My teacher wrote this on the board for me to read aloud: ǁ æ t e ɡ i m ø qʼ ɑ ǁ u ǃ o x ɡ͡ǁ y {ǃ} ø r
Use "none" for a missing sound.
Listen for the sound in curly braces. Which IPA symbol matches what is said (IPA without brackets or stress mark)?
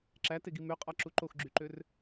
ǃ